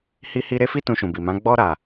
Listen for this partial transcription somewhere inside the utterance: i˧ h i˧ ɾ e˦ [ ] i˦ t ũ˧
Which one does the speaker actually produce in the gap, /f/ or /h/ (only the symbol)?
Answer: f